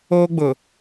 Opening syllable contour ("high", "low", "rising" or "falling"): high